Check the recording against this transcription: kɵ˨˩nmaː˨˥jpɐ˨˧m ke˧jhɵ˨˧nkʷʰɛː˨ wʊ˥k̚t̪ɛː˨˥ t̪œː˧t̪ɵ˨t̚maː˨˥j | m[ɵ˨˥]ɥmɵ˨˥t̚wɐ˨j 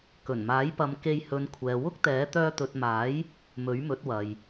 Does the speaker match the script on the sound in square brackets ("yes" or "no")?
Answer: yes